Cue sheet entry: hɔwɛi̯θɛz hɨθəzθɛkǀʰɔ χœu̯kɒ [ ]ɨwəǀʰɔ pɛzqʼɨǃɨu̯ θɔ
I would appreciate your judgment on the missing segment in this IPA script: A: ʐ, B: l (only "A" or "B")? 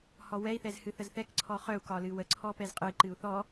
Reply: B